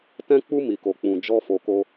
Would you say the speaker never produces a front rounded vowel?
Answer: yes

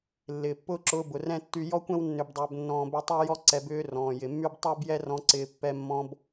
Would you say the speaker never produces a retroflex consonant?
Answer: yes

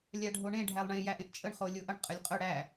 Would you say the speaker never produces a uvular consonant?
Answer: no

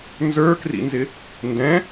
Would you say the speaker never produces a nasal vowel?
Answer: no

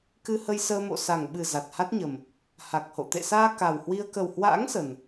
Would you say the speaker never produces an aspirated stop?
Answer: yes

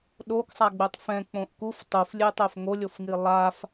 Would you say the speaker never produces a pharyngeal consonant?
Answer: yes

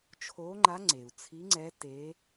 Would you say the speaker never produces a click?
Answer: no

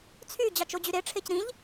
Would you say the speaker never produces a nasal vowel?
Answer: no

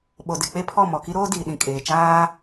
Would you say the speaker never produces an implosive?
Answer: no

